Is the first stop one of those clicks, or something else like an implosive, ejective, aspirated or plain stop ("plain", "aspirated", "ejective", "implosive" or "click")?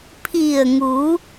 aspirated